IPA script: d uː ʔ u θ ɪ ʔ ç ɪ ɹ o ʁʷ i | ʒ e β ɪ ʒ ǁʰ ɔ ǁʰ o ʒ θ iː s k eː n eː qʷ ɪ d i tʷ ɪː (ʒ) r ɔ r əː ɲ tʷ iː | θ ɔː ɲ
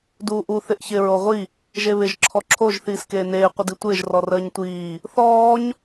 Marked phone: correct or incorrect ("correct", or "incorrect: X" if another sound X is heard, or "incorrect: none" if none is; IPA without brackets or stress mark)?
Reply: correct